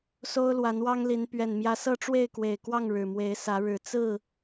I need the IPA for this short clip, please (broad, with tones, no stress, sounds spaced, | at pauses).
s o˦ ʊ̯ l w a˨˦ n w ɑ˦ ŋ l i˨˦ n p ɥ ɛ˨˩ n m j ä˨˦ s ɤ˥˨ ʈ͡ʂ w e˥˨ ɪ̯ k w e˨˩ ɪ̯ k w ɑ˥˨ ŋ ɻ ɻ̩˨˩ m w e˨˦ ɪ̯ s ä˨˦ ɻ ɻ̩˨˩ t͡s ɹ̩˥˨